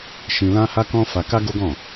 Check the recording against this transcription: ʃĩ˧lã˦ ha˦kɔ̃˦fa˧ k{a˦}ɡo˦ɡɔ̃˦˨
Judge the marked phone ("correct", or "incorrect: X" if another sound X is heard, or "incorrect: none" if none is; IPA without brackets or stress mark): correct